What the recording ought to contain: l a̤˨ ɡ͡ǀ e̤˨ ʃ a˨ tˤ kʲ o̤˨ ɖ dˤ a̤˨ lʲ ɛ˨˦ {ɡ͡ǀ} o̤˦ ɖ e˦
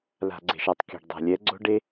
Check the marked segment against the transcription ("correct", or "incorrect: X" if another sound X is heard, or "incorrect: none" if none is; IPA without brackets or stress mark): correct